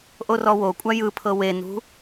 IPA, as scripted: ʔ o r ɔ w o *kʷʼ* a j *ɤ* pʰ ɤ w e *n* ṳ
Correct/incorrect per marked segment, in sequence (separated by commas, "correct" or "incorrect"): correct, incorrect, correct